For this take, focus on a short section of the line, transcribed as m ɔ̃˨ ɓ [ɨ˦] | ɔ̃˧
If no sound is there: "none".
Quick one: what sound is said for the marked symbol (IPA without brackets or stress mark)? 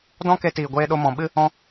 ɨ˦